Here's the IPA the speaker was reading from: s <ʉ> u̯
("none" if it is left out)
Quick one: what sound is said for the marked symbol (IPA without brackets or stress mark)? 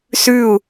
ʉ